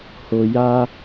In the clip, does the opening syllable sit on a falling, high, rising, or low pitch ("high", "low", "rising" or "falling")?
low